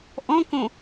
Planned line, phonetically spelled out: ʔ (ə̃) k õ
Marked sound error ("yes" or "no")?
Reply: yes